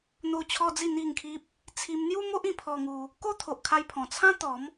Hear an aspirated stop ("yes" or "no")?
yes